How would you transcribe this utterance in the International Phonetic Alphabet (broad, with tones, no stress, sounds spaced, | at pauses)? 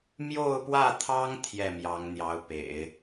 m j o˥˧ ʊ̯ p w ä˥˩ t̪ʰ ɑ˥ ŋ t̪ʰ j ɛ˥˩ m j ɑ˧˥ ŋ n̪ j ɑ˧˥ ʊ̯ p ḛ˨˩˦ ɪ̯